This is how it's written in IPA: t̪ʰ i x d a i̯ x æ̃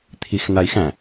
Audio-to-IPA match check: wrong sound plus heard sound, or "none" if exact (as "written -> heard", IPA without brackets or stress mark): d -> n